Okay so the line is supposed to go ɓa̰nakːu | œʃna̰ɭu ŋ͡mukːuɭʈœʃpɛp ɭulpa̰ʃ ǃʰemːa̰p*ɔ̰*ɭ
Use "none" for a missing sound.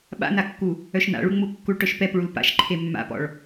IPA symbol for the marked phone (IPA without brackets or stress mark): ɔ̰